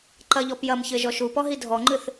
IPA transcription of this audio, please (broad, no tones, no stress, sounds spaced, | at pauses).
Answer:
ǃ ɐ ʎ ɔ p j ɐ m ç ɘ ʒ ɔ ʃ u p ɔ ɦ i dʱ ɔ ŋ͡ǃ ɨ θ